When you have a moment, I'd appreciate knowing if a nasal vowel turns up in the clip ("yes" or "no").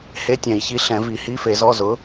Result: yes